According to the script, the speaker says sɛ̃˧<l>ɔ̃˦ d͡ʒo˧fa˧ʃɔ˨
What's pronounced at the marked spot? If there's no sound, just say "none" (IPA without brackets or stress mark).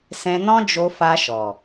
n